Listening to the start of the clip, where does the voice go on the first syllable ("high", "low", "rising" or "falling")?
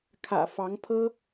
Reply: low